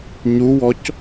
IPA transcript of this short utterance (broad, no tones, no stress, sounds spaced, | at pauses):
ɲ u w ɔ c